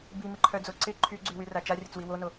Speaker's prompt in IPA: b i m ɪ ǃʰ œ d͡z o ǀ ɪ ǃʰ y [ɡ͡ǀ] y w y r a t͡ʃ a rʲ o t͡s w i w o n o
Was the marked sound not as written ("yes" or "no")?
no